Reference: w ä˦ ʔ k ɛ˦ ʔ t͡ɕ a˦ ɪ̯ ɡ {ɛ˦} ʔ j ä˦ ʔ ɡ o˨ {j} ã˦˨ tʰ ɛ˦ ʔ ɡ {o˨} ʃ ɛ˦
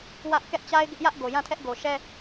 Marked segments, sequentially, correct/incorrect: incorrect, correct, correct

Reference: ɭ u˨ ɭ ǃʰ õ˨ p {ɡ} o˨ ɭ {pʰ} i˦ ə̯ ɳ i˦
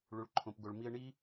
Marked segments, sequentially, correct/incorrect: correct, incorrect

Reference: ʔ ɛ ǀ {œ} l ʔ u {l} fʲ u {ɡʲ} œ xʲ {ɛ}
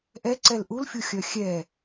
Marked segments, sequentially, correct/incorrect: incorrect, correct, incorrect, correct

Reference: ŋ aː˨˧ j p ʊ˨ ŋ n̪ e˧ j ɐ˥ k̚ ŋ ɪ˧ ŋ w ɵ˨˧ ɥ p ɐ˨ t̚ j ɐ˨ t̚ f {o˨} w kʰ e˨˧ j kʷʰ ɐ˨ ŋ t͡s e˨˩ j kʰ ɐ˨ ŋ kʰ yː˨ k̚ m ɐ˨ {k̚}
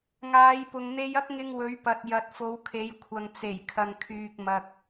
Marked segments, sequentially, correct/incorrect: incorrect, correct

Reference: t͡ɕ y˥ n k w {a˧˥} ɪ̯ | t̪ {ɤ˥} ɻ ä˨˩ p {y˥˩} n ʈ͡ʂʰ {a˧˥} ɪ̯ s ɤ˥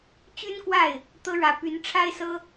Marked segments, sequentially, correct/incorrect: incorrect, correct, incorrect, incorrect

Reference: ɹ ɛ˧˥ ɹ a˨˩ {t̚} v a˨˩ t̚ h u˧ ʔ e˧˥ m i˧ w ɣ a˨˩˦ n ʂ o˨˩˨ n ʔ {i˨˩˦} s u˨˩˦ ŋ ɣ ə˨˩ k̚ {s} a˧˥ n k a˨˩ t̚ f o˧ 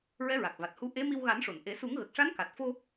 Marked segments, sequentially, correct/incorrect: incorrect, incorrect, incorrect

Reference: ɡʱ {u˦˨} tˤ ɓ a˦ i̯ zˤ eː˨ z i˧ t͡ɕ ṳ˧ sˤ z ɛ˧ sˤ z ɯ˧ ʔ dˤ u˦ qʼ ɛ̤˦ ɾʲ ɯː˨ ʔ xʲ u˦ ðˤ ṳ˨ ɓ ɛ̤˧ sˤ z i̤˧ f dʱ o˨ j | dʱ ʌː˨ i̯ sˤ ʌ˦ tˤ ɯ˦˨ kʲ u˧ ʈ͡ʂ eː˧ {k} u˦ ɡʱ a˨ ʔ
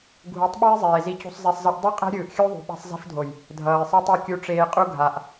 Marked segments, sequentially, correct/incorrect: incorrect, incorrect

